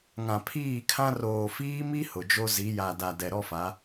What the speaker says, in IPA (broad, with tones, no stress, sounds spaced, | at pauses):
ŋ ã˨ pʰ iː˦˨ kʰ ã˦ r oː˨ f iː˦ m i˦ h ʊ˨ d͡ʒ o˦ z i˨˦ j a˨ d a˨ d ɛ˨ ɾ ɔ˦ f a˨˦